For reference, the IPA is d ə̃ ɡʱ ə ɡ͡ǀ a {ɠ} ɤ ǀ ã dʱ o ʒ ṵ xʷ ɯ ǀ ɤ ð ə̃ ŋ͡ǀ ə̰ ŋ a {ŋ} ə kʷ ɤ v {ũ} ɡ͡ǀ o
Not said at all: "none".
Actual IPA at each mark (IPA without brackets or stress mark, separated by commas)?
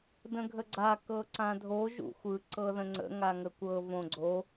k, ŋ, õ